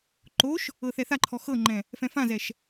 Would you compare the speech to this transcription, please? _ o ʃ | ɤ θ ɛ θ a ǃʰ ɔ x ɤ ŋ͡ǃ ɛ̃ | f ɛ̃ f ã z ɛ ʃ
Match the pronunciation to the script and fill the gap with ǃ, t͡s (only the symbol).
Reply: ǃ